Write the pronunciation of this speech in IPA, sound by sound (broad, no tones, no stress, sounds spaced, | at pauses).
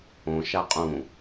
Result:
õ ʃ a qʼ ũ